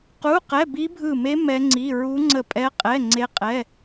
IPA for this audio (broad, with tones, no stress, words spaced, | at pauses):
qu˧˥˧qɛ˧˥˧ bi˦˥bʱɯ˦˨me˦˥ mɛ˦˥ŋ͡ǀi˧˥˧ ɹu˦˥ŋ͡ǀə˦˨pʼɛ˦˥qʼɛ˧˥˧ ŋ͡ǀe˦˥qʼɛ˧˥˧